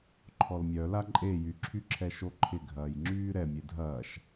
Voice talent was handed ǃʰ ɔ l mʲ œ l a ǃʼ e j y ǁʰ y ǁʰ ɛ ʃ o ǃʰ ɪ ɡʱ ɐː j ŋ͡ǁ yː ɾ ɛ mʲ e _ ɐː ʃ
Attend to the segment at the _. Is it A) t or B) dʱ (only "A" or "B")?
B